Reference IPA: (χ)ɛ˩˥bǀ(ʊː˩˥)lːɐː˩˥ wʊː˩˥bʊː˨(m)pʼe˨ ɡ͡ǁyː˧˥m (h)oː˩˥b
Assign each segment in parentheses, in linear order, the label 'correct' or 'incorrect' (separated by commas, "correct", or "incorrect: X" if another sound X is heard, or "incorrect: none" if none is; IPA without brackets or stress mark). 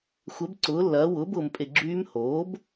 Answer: incorrect: xʷ, correct, correct, correct